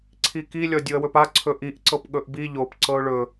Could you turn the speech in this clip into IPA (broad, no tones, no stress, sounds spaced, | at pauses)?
ǀʰ i k i lʲ ɔ dʲ u ə̯ w ɵ p a ǀʰ ɵ ʔ i ʔ ǀ ɤ p ɠ ɵ ʔ b i ʎ o p ǀ ɤ ʊ̯ ɭ ɵ